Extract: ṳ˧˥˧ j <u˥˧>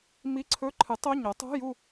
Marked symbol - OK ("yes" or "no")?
yes